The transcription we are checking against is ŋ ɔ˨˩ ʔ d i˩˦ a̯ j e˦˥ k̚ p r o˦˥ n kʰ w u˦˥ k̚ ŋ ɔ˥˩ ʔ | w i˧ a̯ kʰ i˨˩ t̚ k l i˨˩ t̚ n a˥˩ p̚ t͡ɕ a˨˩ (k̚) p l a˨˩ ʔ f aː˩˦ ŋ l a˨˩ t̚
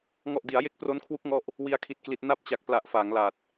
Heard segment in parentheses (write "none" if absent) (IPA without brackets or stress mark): k̚